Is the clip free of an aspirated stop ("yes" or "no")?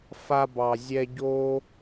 yes